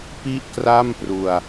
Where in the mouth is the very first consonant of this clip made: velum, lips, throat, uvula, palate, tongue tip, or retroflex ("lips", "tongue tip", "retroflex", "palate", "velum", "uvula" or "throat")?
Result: lips